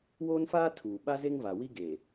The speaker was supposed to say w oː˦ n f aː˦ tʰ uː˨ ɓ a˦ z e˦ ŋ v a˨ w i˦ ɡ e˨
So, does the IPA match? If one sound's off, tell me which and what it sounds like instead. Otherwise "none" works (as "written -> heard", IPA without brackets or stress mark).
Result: none